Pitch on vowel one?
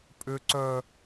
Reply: high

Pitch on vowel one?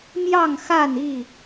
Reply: falling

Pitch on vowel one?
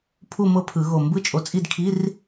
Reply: falling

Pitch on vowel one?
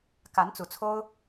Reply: rising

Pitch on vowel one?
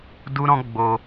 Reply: high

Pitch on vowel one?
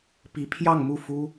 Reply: rising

